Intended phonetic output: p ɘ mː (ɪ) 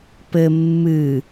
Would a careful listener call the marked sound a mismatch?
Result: yes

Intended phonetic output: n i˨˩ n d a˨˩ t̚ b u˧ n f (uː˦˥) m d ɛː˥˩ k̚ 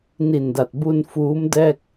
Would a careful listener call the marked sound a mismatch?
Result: no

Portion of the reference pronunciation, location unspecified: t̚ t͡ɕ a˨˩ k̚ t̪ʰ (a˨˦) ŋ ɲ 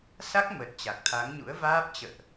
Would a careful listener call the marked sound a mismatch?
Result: no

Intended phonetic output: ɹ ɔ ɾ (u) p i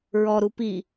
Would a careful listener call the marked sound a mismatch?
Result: no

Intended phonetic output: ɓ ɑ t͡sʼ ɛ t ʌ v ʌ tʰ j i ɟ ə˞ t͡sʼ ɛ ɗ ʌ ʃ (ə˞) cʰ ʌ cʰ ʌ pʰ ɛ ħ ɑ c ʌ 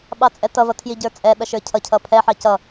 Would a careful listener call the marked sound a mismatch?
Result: no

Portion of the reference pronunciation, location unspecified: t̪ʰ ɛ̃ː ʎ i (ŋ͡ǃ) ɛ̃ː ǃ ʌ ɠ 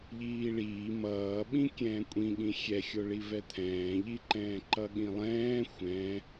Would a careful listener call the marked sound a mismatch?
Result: yes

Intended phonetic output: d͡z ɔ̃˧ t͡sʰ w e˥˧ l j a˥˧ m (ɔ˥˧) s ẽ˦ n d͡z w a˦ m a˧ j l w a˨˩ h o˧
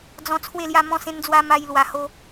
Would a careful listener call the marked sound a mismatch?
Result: yes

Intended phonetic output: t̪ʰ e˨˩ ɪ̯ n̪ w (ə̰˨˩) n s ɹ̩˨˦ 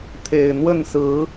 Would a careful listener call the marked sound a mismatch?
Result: yes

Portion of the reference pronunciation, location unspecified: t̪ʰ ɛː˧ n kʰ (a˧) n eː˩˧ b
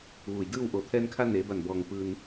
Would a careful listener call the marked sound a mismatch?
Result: no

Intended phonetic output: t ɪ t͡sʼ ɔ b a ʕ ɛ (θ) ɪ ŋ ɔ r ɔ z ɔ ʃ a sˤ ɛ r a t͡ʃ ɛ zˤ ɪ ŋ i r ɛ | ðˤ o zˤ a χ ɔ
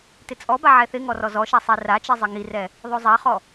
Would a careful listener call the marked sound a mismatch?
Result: no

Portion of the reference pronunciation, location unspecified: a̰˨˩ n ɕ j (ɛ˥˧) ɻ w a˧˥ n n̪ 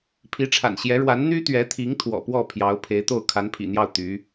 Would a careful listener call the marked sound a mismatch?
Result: yes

